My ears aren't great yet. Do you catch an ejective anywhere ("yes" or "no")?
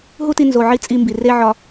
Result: yes